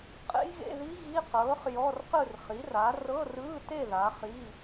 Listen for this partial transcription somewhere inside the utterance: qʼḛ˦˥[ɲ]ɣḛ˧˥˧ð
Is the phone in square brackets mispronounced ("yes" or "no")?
yes